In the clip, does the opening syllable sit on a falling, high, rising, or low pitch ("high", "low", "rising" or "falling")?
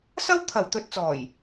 high